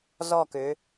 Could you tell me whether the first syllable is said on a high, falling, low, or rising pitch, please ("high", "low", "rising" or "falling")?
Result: falling